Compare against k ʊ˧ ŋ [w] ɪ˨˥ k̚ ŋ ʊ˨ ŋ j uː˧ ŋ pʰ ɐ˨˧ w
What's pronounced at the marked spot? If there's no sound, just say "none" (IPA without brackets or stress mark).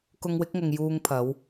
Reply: w